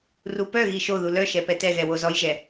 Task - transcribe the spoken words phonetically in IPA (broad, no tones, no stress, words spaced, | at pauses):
rupœɣi ʃoðu lœʃɛ pɛtɛɣɛ wozɔjʒɛ